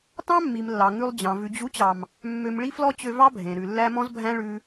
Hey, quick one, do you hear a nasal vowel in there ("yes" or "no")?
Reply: yes